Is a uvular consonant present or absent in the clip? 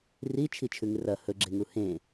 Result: absent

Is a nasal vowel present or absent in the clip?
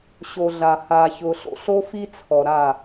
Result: absent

